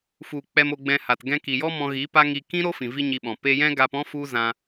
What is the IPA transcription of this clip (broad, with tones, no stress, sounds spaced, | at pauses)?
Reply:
f u˨ k͡p ɛ˧ m o˧ ɡ͡b ɛ̃˧ h a˨ t ɡ ɛ̃˧ k i˨ j ɔ˦ m ɔ̃˧ ɣ i˨˦ p a˦ ŋ i˧ k ĩ˦ ɾ o˦ f ĩ˨ v i˦ ɲ i˧ ɓ ɔ̃˨ p e˧ j ɛ̃˦ ɡ a˧ p ɔ̃˦ f u˦ z ã˧